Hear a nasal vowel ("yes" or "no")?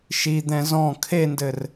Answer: yes